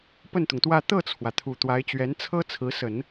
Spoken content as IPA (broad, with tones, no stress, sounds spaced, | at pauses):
p ə˥˩ n t̪ ʊ˩ ŋ t̪ w ä˥˧ t̪ ɤ˥˩ t͡sʰ w ä˩ t̪ʰ u˨˩ t̪ w a˧˥ ɪ̯ t͡ɕ ɥ ɛ˧˥ n t͡sʰ ɤ˥ t͡sʰ ɹ̩˧˥ s ə˨˩˦ n